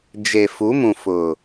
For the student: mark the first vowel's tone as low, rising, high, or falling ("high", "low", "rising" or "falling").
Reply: low